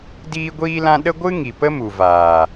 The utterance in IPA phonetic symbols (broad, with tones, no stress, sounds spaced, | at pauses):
d iː˦ ɡʷ iː˦ l ã˦ ɗ ə˦ ɡʷ ɨ˦ ŋ i˨ p ə˦ m u˨ v aː˨